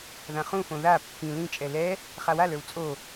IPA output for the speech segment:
ðãχũfõ ða pːĩ lĩt͡ʃʼɛ lɛ | χawalə˞w t͡sʼo

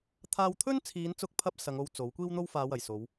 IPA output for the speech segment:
t̪ʰaː˧wt̪ʰɵ˥nt͡sʰiː˨˧nt͡sʊ˧k̚ pʰɐ˥p̚ sɐ˨˧ŋo˧w t͡so˨˥w kʷiː˥wn̪o˥wfaː˨˧wɐ˨˩j so˨˧w

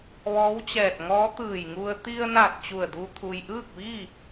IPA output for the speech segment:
ʋɔː˧˥wt͡ɕɛː˧˩t̚ŋɔː˧˥ t̪ɯː˧˩jŋu˧ə̯ t̪i˧ə̯na˧˩t̚ t͡ɕu˧˩ə̯du˧ t̪ʰu˩jʔɯː˥˨k̚ʋiː˥˨

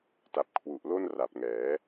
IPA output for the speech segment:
ta˨˩p̚kʰwu˨˩ʔlo˥˩n ra˨˩p̚ŋɛː˩˦

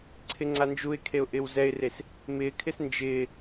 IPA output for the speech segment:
ǀʰɪŋ͡ǀand͡ʒuɪ̯kʰeʊ̯ ʔɪːwzɛɪ̯res | mɪːkʰɪs nd͡ʒɪː

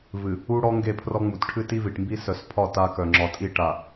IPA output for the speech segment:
vɨ˨ | u˦ɽɔ˦ ŋɡe˦˨pʰrɔ˦ŋ͡mu˨t ʈʰɨ˦ti˦vi˨ʈmbi˦ sœ˨spʰɒ˦˨ ta˦kœ˨ ŋ͡ǁɒ˨tʼi˦ʈa˨

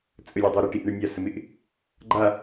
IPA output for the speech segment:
t͡sʼəlʲedˤo ɾɪʈiʔɳɪ nʲasəmɪʔ | ɡ͡ǃa

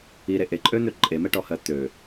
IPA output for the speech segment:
iɾe ʔeǃʼøn̪ø ǃʼemɛʈɔhɜ t̪ø

